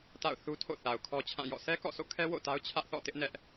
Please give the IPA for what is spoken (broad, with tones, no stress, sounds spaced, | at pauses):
t a̰˦˨ ʊ̯ θ u˦ tʰ o̰˦˨ θ a˨ ʊ̯ kʰ ɔ˦ t͡ɕʰ ã˦˨ j ɔ̰˦˨ sʰ ɛ˦ k ɔ̰˦˨ sʰ o̰˦˨ kʰ ɛ˦ w o̰˦˨ t a˦ ʊ̯ t͡ɕʰ ä˦ ʔ θ ɔ̰˦˨ t ɪ˦ ʔ n ɛ˦ ʔ